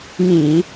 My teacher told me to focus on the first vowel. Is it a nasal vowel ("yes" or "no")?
yes